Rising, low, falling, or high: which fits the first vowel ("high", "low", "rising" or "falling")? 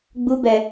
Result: high